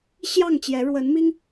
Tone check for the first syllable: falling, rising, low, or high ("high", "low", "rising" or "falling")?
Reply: falling